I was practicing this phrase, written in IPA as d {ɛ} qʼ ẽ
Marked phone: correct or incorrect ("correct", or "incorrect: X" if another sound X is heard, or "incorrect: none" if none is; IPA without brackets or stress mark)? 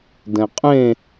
incorrect: ɛ̃